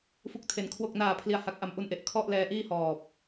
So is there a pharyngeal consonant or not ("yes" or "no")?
no